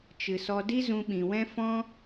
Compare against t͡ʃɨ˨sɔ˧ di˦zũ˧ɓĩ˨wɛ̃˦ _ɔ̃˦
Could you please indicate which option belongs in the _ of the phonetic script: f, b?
f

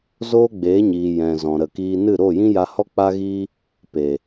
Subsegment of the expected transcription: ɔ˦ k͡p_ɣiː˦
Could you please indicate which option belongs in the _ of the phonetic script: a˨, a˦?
a˦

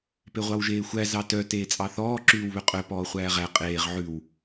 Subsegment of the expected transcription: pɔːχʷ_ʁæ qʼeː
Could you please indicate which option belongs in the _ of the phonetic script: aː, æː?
æː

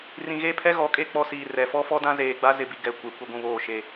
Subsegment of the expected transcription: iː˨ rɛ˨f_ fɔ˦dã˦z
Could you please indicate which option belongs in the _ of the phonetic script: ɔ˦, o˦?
ɔ˦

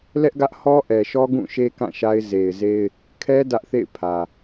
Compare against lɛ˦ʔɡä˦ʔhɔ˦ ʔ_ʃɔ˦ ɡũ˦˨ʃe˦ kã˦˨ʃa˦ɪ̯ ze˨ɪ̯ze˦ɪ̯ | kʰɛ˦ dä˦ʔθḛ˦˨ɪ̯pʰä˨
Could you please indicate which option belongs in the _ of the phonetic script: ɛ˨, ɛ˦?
ɛ˨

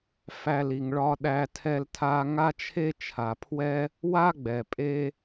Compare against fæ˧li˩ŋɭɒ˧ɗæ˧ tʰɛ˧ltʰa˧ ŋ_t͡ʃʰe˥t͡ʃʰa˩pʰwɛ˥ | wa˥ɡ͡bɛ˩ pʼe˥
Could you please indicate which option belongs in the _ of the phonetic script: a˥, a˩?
a˥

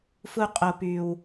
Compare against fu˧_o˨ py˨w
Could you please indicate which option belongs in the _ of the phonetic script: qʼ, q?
qʼ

